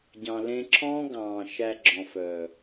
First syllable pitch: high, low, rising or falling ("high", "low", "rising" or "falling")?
low